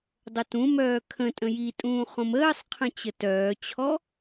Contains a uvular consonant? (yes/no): yes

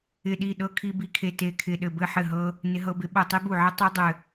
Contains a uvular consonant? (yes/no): no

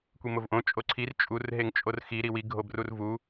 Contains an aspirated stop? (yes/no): yes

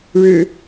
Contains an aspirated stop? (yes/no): no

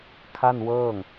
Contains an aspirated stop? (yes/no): yes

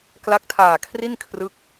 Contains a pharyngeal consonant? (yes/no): no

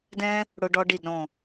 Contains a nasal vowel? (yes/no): yes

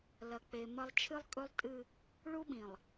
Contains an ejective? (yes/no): yes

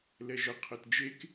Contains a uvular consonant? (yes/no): yes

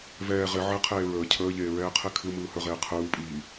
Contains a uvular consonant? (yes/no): yes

